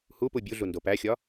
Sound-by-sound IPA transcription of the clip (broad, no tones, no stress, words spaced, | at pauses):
hupu bʲuɮu ndopæxʲɒ